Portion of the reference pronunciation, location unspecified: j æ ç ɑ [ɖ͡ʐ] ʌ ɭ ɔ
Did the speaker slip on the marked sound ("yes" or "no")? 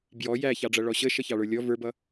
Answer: no